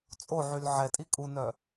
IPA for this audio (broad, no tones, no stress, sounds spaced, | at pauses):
t͡sʼ o ʕ y l ʕ ɛ tʼ i kʼ u n œ